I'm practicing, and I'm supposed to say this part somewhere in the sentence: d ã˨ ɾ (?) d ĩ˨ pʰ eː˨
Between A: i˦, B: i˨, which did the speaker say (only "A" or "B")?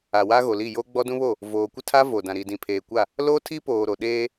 B